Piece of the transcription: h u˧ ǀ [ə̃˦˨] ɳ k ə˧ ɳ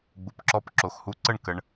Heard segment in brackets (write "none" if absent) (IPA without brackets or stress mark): ə˦˨